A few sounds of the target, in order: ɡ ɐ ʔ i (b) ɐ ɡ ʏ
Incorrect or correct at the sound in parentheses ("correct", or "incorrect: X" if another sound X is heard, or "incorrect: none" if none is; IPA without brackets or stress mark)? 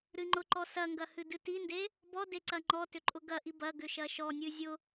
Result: correct